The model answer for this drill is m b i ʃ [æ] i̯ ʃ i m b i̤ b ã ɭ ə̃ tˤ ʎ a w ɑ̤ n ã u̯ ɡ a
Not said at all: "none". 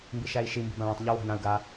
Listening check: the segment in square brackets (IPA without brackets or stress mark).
æ